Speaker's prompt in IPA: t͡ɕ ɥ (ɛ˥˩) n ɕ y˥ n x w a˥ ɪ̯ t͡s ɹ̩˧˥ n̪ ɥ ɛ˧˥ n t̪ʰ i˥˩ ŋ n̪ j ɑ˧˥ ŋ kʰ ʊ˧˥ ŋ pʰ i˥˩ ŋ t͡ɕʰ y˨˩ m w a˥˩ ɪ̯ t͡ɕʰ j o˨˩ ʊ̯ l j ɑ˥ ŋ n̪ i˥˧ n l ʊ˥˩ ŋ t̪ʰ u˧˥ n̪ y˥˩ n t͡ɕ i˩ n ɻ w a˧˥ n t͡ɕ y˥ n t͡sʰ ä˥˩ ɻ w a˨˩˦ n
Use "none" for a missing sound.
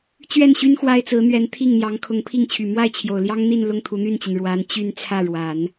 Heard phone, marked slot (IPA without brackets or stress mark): ɛ˥˩